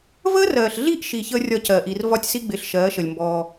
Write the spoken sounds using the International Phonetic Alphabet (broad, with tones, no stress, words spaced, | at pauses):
vəː˦rɜː˨ɬɮi˦ʔʃi˨ çəː˦rʲɒ˦˨cɜː˨ʔi˨r vɒ˦tʲsi˦ɡ͡bɪː˨ɬ ʃɜː˨˦ʃə˨lʲmbɔː˦